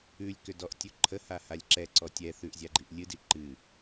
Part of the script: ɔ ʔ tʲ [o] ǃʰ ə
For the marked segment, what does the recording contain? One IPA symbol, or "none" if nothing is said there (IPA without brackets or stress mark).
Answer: ɵ